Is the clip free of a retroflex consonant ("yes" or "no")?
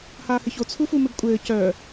yes